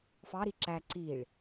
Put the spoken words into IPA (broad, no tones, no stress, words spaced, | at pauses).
fɑɾi ǁæ ǀiɭ